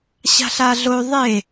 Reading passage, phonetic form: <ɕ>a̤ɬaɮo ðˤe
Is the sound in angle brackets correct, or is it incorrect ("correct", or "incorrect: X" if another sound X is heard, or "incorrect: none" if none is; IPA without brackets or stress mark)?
correct